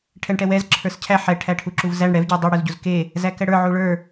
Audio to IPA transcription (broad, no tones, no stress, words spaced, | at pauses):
ʈʰɛɳʈɛwɛz ǁʰə˞scʰæ ħɛ ʈʰæʈʰuǁuvzæɳ ɽɛv ɟædˤu ɽuzɟuzke | zækɛɽə˞ ʕuɭə˞